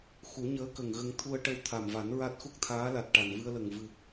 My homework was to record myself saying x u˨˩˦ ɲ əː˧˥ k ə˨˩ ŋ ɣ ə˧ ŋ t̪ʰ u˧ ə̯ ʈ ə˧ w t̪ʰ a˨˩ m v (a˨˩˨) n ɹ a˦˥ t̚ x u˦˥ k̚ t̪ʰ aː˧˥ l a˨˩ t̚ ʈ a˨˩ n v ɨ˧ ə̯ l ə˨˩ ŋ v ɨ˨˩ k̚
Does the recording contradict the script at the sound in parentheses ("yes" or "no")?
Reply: yes